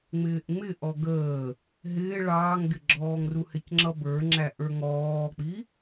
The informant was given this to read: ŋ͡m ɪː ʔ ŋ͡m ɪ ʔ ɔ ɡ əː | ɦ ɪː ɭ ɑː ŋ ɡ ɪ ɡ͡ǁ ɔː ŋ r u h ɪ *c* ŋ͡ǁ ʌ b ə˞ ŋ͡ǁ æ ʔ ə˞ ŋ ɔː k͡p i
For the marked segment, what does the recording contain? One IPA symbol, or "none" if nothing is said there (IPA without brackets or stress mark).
c